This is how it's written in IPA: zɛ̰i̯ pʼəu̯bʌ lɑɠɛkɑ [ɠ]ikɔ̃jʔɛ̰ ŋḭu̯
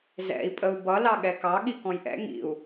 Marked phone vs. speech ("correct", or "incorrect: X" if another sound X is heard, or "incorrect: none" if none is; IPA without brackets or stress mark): correct